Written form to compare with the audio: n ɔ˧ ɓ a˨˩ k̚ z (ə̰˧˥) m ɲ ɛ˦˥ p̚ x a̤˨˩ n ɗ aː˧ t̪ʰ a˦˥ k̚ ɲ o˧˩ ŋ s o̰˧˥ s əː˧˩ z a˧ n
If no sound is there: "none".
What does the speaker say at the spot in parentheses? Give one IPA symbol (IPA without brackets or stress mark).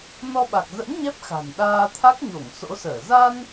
ə̰˧˥